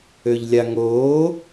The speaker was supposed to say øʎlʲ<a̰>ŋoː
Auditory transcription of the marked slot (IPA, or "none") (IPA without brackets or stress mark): a